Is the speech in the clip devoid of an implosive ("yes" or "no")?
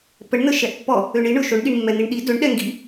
no